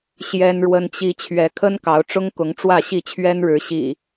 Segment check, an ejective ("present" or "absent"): absent